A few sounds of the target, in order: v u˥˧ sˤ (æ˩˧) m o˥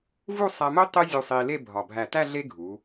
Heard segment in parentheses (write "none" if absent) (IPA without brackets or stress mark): æ˧